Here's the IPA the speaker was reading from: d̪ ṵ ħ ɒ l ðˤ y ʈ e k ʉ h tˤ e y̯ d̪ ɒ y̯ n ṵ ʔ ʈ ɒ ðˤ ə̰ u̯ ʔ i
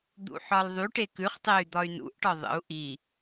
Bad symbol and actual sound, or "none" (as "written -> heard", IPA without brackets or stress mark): h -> χ